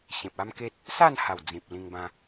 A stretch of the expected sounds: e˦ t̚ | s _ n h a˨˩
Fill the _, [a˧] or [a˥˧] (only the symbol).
a˥˧